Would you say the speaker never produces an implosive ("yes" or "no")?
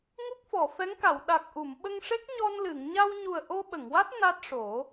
no